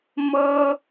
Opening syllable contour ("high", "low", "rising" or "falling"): high